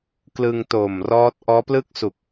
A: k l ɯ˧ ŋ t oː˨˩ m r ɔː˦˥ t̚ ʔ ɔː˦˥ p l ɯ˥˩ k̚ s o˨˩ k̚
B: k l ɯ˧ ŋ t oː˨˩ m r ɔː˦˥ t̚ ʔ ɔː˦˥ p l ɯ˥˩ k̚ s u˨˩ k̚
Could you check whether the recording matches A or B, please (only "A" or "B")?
B